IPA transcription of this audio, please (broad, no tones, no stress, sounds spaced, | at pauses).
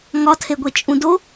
ŋ ɒ tʰ e ɡʷ e t͡ʃʼ ũ d o